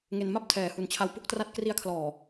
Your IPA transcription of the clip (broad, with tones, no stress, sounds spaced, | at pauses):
ŋ e˧ n m a˥˩ p̚ tʰ ɛː˨˩ h u˨˩ n t͡ɕʰ a˧ w p u˦˥ k̚ t r a˦˥ t̚ k r i˧ a̯ kʰ l ɔː˨˩